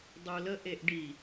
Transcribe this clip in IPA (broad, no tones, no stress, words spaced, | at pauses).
dˤulə ʔeʔɖi